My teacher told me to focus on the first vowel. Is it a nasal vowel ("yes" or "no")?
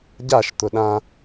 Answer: no